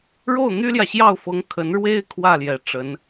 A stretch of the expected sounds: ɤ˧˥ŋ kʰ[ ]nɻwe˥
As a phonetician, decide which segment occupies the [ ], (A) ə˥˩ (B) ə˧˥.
B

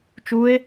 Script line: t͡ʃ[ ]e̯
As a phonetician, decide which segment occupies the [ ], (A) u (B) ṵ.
A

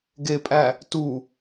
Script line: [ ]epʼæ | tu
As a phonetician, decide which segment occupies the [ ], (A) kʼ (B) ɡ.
B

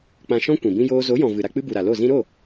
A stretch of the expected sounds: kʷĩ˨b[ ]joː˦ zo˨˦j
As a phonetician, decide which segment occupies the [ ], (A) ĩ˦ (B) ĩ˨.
A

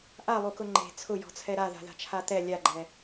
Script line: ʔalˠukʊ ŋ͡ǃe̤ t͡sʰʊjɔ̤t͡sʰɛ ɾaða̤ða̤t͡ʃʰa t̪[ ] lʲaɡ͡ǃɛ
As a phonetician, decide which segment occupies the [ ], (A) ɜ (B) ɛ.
B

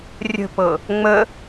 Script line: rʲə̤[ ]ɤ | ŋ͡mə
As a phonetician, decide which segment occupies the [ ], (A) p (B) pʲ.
A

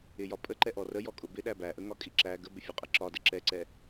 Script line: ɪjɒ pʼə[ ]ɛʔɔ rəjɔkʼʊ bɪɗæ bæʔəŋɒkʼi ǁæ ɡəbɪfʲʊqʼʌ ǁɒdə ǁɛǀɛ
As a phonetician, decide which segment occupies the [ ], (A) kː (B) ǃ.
B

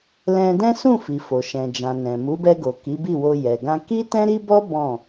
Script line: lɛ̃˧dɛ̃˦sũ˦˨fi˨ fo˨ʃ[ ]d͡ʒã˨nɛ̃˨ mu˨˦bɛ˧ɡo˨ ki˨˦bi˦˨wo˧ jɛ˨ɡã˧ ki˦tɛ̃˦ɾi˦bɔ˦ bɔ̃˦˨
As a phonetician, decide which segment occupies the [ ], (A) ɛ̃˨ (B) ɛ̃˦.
A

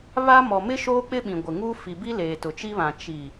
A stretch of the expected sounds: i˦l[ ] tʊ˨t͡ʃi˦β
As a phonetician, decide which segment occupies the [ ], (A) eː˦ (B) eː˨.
B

